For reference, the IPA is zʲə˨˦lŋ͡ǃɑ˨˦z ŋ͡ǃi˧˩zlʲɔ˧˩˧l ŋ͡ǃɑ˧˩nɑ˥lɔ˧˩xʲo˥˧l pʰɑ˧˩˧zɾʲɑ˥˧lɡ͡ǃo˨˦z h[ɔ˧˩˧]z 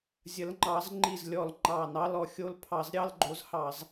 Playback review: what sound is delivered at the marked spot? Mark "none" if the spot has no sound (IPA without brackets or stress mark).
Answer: ɑ˧˩˧